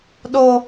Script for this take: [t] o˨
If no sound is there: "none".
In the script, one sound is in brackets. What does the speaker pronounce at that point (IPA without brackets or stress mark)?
ɗ